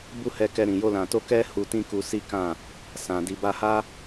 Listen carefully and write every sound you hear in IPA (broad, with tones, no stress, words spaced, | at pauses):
bu˦hɛ˧kɛ˧ ɾĩ˨jo˧ lã˨to˧ kɛ˦ hu˧tĩ˦ku˧si˦ kã˦˨ | sã˨ di˨ba˧ha˦